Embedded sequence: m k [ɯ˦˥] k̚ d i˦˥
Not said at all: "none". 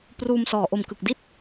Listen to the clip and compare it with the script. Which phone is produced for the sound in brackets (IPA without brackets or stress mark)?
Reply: ɯ˨˩